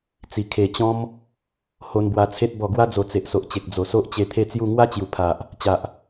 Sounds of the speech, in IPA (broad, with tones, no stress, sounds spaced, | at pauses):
t͡s i˨˩ kʰ e˨˩ t͡ɕ ɔ̃˦ m | h o˧ n b w a˧ t͡sʰ e˦ t̚ b ɔ˨˩ ɡ w a˧ d͡z o˨˩ t͡s e˨ ʔ s o˨ ʔ t͡ɕ e˨ k̚ d͡z o˨˩ s o˦ ʔ t͡ɕ e˧ t̪ʰ e˥˧ t͡s j u˥˧ ŋ w a˦ t͡ɕ j u˨˩ pʰ a˨ ʔ | t͡ɕ a˨ ʔ